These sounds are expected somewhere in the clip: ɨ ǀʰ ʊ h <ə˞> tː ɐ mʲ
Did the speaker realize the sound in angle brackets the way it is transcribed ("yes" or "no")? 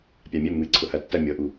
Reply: no